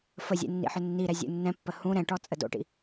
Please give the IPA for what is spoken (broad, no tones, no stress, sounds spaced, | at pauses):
f ə zʲ ɛ̰ nː ḭ ħ ʏ nː i ɾ ɛ zʲ ṵ nː ɛ̃ pː ə h ũ ɾ ɛ̃ ʈ ɔ t͡sʼ ə d o̰ ʈ ḭ